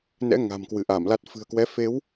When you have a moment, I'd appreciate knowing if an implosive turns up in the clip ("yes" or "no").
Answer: no